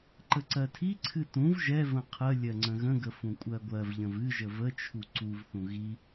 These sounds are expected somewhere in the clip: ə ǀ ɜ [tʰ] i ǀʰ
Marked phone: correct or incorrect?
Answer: correct